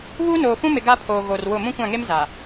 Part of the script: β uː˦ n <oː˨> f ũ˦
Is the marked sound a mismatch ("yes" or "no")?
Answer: no